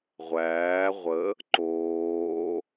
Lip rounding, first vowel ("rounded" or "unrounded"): unrounded